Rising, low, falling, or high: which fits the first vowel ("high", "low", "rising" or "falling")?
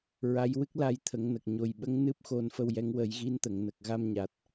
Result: rising